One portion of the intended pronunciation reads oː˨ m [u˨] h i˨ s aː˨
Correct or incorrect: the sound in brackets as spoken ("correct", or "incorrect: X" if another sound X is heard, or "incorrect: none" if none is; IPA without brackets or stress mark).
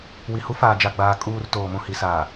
incorrect: ũ˨